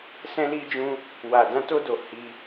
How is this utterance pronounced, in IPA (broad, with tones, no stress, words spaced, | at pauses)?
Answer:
sɛ̃˧li˧d͡ʒũ˧ | wa˨dã˧to˧do˨ hi˧